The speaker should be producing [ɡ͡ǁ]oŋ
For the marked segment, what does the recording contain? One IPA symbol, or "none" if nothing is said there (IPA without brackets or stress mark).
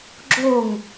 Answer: ɡ͡ǁ